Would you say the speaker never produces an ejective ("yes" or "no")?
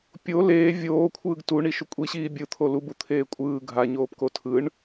no